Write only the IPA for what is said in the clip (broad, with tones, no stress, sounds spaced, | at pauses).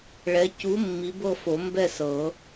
ɭ ɛ˨˥ c u˨˥ mː i˨˥ b ɤ˥˨ f o˨˩˦ m b ɛ˥˨ s ɤ˨˩˦